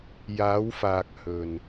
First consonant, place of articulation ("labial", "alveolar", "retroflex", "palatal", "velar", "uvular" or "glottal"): palatal